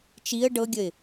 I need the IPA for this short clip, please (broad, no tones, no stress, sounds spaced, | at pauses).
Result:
t͡ʃ i ə̯ ɖ ɤ ɡʲ ə ɪ̯